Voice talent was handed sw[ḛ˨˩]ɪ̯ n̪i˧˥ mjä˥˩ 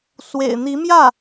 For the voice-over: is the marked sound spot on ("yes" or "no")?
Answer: yes